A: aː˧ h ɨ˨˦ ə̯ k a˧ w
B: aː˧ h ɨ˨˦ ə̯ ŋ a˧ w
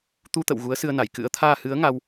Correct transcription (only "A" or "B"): B